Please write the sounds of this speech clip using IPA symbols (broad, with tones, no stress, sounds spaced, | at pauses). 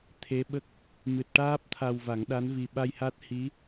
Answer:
t̪ʰ e˧˥ ɓ ə˦˥ k̚ | m ɨ˨˩ t̚ ʈ aː˦˥ p̚ t̪ʰ a˨˩ w v a˨˩˦ ŋ ɗ a˧˥ n v i˨˩ ɓ a˧ j h a˦˥ t̚ h i˧˥